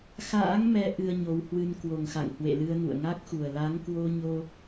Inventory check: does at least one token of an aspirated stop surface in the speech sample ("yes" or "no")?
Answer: no